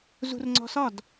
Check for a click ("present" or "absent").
present